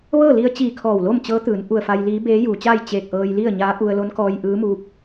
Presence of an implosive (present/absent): absent